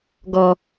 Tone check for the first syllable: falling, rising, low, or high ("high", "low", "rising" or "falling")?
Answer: high